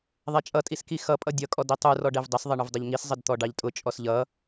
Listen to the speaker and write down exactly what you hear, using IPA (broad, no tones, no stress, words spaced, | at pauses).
ðˤɛt͡ʃʼʌtʼiski xʌpʼʌ dʲʌkʼɔd itˤurɔ ɖɛvdˤəsðˤʌ ɳʊvdˤəʎŋis zˤədt̪ɔɖɑʎtʼʊ t͡ʃʼɔsʎʌ